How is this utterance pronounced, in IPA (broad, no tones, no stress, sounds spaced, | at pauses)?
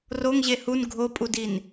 r o ŋ ʑ e h u n ɡʱ o pʼ u d i n